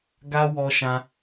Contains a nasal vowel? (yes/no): yes